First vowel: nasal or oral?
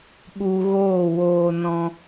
oral